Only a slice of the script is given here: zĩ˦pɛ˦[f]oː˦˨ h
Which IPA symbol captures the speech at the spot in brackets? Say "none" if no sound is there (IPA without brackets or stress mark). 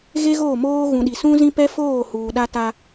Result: f